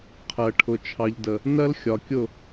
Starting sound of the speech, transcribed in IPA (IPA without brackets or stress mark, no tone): qʰ